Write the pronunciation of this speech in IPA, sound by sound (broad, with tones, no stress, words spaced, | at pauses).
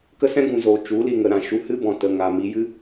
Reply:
kə˦sɛ̃˦ɡũ˨zoː˨ t͡ʃu˨˦li˨ŋə˨ ɾã˨ ʃu˧hɨ˦bɔ̃˨ tə˨ŋa˨mi˧jɨ˦